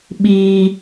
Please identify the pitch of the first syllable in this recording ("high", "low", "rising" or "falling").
high